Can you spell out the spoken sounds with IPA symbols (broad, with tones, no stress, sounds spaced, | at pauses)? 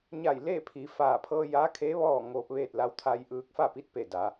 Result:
ɲ a˧˩ j l eː˥˨ pʰ i˩˧ f aː˧˩ pʰ ɤː˧ j aː˧˥ kʰ eː˧˥ ʋ ɔː˥˨ ŋ oː˧ p̚ ʋ eː˥˨ t̚ l a˧ w t̪ʰ a˧ j ʔ ɯː˧ k̚ f a˥˨ p i˧˥ t̚ p e˧˩ d a˩˧